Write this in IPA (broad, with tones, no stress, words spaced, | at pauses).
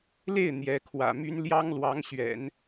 le˥˩ɪ̯ n̪jɛ˧˥kʰwä̰˨˩my˥n ljɑ˥ŋlwɑ˧˥ŋɕɥɛ̰˨˩˦n